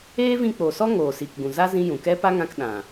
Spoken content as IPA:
eː˦ v ĩ˧ k͡p o˨ s ɔ˦ ŋ oː˨ s iː˨ k ɡ ũ˨ z a˦ z ĩ˦ j ũ˨ k ɛ˦ p a˦ ŋ ã˧ k ɗ ã˨

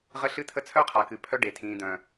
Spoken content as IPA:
ʁ ə˧ ɬ ɨ˧ t̪ʰ ə˧ t͡sʰ œ˦ qʰ a˨ k ɨ˨ pʰ œ˦ ɖ e˨ tʰ ĩː˨ d̪ œ̃˨

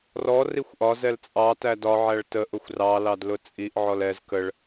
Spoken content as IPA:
r ɔ r i xʷ ʔ ɒ z ɛ l t͡sʼ ɑ t æ d ɒ ʕ æ ɭ t ə ʔ ʊ xʷ r ɑ l ɑ d l ʊ t͡sʼ i ʔ ʕ ɔ l ɛ z k ə ɭ

